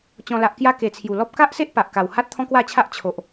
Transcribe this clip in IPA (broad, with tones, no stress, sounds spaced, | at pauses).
t͡ɕ ɔ̃˨˩ l a˨ ʔ k j a˧ k e˨˩ t͡sʰ j u˨˩ l ɔ˦ p̚ k a˦ ʔ s e˦ ʔ p a˨ ʔ k a˨˩ w h a˦ t̚ t̪ʰ ɔ̃˦ k w a˥˧ t͡ɕʰ a˦ ʔ t͡ɕʰ o˨ ʔ